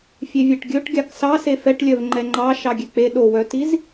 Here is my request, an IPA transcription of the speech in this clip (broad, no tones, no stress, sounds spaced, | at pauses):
fʲ e vʲ ɛ ʈ ɡʲ ɵ ʈ ɡʲ ɑ k s ɑ s e f ɛ ʈ lʲ œ v ŋ͡ǃ ɛ ŋ͡ǃ ɑ ʃ ɑ ɡʲ ɛ k͡p e ɗ o w œ t i z